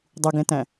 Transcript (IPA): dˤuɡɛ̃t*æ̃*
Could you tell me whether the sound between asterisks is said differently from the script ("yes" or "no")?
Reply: no